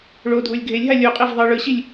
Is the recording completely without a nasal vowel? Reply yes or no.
yes